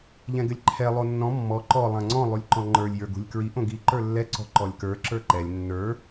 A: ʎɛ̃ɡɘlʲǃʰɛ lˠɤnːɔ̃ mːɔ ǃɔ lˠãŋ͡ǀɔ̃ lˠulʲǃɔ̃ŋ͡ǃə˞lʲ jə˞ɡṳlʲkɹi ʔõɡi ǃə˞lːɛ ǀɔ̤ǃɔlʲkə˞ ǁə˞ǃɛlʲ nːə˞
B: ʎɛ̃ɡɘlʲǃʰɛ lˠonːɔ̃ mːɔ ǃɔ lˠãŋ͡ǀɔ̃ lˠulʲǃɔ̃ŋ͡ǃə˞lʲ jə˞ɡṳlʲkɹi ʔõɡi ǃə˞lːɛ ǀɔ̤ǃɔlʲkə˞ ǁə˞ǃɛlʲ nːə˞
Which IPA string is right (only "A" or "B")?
B